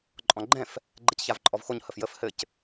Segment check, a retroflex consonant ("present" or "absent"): absent